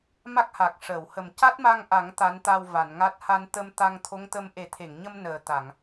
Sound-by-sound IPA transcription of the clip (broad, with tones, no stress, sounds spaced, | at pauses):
m a˦˥ k̚ h a˨˩ k̚ ʂ əː˨˩˨ w h ə˨˩ m c a˦˥ t̚ m a˧ ŋ ʔ a˨˩˦ ŋ t̪ a˧˥ n t̪ a˧ w v a˨˩˨ n ŋ a˦˥ t̚ h a˧ n t̪ ə˧ m t̪ a˧ ŋ t̪ʰ o˧˥ ŋ t̪ ə˧ m ʔ e˨˩˦ t̪ʰ e˨˩˨ ŋ ɲ ə˧ m n əː˨˩ t̪ a˨˩˨ ŋ